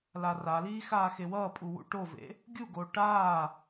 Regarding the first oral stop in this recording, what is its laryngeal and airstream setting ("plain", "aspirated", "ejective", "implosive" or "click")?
ejective